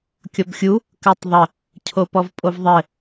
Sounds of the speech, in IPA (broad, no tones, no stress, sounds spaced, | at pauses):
kʲ ɔ b xʲ u | k ɜ tˤ ðˤ ə | cʰ o p ɔ v pʼ o v ðˤ ɘ